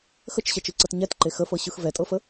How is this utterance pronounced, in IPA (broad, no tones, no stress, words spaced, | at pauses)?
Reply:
xət͡ʃɕɛt͡ʃɯǀɤt ɲɛtǃe xəfɤɕɯx vɛtʼɤfə